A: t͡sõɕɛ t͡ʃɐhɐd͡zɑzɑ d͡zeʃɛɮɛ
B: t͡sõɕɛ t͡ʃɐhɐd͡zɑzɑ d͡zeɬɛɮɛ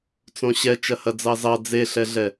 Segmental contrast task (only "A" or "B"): B